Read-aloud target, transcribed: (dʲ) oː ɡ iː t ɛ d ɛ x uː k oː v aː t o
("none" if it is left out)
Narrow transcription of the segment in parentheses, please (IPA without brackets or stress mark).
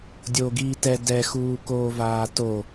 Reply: dʲ